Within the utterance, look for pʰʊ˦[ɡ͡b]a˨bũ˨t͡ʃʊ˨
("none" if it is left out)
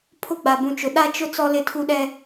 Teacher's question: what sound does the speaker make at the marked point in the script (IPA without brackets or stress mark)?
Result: ɡ͡b